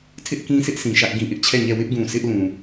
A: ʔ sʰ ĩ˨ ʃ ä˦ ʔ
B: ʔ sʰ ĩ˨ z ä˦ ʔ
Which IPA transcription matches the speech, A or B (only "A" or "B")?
A